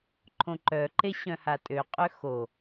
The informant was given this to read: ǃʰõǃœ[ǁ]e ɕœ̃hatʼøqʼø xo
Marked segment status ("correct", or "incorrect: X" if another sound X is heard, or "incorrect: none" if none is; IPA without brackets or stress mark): incorrect: ǃ